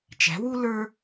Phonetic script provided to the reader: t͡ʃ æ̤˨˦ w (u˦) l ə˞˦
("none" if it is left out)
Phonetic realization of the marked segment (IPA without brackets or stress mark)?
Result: u˦